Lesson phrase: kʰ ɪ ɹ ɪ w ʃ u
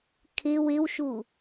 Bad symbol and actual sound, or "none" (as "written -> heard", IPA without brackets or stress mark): ɹ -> w